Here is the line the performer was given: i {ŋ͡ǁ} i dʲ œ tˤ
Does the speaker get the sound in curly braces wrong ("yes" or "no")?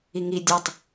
yes